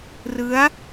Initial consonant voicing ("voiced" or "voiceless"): voiced